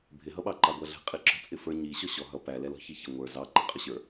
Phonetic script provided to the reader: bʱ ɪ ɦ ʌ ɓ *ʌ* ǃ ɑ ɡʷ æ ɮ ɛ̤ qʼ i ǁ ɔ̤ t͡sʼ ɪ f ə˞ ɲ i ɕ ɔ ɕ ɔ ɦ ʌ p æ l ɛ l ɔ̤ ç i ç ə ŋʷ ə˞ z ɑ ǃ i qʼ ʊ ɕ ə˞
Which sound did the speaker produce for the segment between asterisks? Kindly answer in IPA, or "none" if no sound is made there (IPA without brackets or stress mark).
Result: ɑ